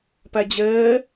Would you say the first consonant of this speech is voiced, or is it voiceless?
voiceless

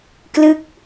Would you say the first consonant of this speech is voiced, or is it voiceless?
voiceless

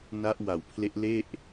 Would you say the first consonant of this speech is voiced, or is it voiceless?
voiced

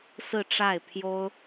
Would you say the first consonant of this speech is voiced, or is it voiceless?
voiceless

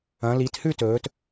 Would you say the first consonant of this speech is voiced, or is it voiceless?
voiced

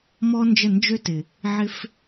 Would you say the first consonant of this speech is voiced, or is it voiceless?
voiced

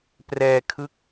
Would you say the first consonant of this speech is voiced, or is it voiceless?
voiceless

